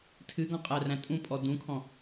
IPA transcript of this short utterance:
tʰ ɨ ɡ ɔ̃ qʼ æ r æ̃ tʼ ũ pʼ ɔ d ũ kʰ ɔ̃

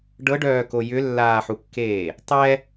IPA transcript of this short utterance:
ɖ ɤ ɖ œː k o j ʏ lː aː ħ u kː eː | tˤ ɛ

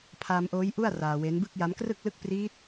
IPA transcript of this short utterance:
pʰ aː˧ m ʔ oː˦˥ j ʔ u˥˩ a̯ r aː˧ w e˦˥ n b ɯ˥˩ k̚ j a˦˥ m k r ɯ˥˩ k̚ l ɯ˥˩ k̚ p r iː˦˥ t̚

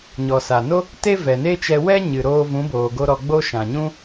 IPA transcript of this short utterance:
ɲ ɔ˨ s a˨ n o˦ | t e˦ v ɛ˨ n e˦ t͡ʃ ɛ˧ w ɛ˦ ɲ ɨ˨ ɾ oː˧ v ũ˨˦ b oː˨ ɡ o˧ ɾ ɔ˧ ɡ͡b o˦ ʃ ã˨ ɲ ũ˦

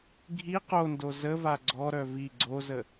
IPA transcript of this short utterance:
ɡʱ i q o n d o z ə v a ɡ͡ǀ ɔ ɾ œ v i ɡ͡ǀ o z ə

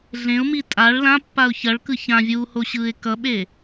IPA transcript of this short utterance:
ɮ ẽ ʊ̯ m i tʼ a ɭ l ã pː a ʊ̯ ç ʌ ɭ k ɯ ç ã vʲ uː h o ɕ ɯː ɪ̯ k ʌ ɓ e

